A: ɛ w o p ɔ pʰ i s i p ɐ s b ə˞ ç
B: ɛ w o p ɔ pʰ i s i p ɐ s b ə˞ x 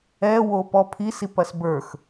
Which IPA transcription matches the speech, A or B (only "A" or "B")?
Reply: B